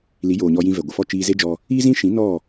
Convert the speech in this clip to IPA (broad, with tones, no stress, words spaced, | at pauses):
li˨˦joː˨ɲɔ˧ jĩ˧ vɛ˨ɡʷə˨fɔ˦˨ t͡ʃiː˧ze˦d͡ʒɔ˧ | i˦zĩ˦ ʃĩ˨˦ nɔ˦˨